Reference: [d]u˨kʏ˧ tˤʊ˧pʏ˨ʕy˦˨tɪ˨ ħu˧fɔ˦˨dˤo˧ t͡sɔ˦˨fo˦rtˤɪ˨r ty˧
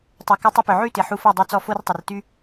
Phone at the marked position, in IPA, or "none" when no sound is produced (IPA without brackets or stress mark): tˤ